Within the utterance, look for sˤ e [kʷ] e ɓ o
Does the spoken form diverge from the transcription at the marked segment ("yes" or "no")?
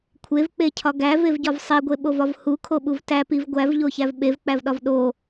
yes